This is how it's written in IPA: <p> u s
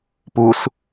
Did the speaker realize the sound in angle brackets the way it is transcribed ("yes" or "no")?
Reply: yes